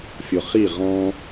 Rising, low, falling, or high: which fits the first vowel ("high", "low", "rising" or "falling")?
low